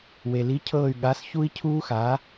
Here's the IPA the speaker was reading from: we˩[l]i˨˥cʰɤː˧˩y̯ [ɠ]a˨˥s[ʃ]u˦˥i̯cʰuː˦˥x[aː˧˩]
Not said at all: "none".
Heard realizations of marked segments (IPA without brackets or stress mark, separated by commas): l, ɠ, ç, aː˨˥